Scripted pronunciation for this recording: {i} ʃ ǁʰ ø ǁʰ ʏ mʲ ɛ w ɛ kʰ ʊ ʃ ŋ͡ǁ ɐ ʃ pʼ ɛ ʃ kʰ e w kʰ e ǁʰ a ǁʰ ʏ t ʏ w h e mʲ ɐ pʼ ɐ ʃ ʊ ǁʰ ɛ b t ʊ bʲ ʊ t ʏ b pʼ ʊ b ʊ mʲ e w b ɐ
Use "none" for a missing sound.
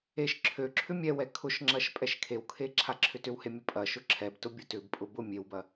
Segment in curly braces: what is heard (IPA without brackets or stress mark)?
e